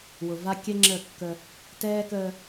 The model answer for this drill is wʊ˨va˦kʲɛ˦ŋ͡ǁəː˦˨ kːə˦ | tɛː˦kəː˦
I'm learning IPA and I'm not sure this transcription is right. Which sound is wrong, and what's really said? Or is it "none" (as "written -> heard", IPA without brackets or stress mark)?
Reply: none